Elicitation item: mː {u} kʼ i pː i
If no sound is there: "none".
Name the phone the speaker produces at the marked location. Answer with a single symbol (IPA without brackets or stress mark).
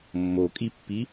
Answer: o